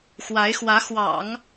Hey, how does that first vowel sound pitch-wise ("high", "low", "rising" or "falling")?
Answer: rising